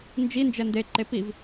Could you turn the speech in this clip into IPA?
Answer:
n d͡ʒ i n d͡ʒ ɛ n d e ǃ e p i v

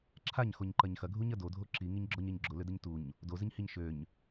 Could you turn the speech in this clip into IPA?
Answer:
ǁʰ a ɲ x o ɲ ǃ ɐ ɲ x ɐ ɡʱ u ɲ ɐ d o dʱ o ǁ i ŋ i ɲ ɡ͡ǁ ɔ ɲ e ɲ ɡ͡ǁ ʊ l ʏ d ə ɲ t u ɲ | d o z ɪ ɲ h i ɲ ʃ ø ɲ

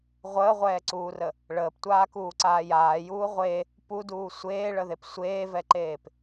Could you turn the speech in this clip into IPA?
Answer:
ʁʷ əː ʁʷ ɛː ǀ uː r ə | ɭ əː p tʷ aː k uː ǀ aː j aː j uː ʁʷ e | p u d uː sʷ eː ɭ ə ð e p sʷ eː v ɛ ǃ eː p

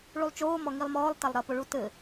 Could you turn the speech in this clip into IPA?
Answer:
ɭ u lˠ t͡ʃ oː m ɔ ŋ i lˠ m ɔː lˠ t a lˠ ɾ ɐ p o ɭ u t ɘ

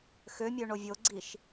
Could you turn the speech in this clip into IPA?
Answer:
x ø mʲ ø ɳ o vʲ o ɡ͡ǀ i ʃ

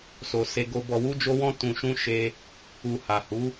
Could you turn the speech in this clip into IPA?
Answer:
s o˨ s e˧ ɡ o˧ b ɔ˨ w u˧ d͡ʒ o˧ w ɔ̃˧ t ũ˨ ʃ ũ˧ ʃ e˧ | u˨ h a˨ h u˨˦

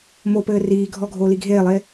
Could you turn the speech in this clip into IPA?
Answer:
m o p ɘː r iː ɡʱ ɔ ɡʱ oː l i ɡʱ eː lˠ eː

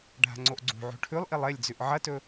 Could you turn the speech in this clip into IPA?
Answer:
ɖʱ a̤ ŋ͡ǀ o ʔ ɡ͡ǀ ṳ ʕ o̤ ʈʰ ʉ lˠ ʔ i lˠ e lʲ d͡z ʉ ʔ ʕ ɐ t ɵ

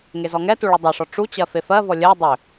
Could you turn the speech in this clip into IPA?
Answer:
ŋ e z ɔ ŋ ɛ t u ɭ u dˤ ɛ ʂ ɔ ʈ͡ʂ u t͡ɕ ɜ f e f ɜ v ɔ lʲ ɜ dˤ ʏ

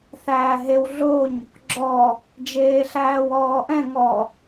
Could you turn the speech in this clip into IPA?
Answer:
θ æː ɦ e w ɮ o ɲ | ɡ͡ǁ ɔ | d͡ʒ eː ɬ æː w ɔː ʔ ɛ̃ ŋ ɔ

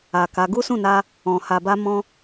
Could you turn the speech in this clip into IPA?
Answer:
a˨ k a˨˦ ɡ u˦ s ũ˦˨ n a˧ | ɔ̃˨ h a˨ b a˧ m ɔ̃˧

